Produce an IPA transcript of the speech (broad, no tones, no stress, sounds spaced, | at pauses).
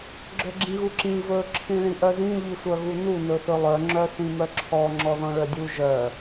ɡ͡ǁ œ ɡ͡ǁ ĩ ɣ u ǁ ĩ v ɵ ǁʰ ĩ ɭ ĩ ʔ œ z ĩ ʎ i sʷ œ ɣ u n u n ɵ θ ɵ lˠ œ ŋ͡ǁ œ θ ĩ m œ ǁʰ ɔ ŋ͡ǁ ɔ ð ɔ̃ ɭ œ dʲ u ʒ œ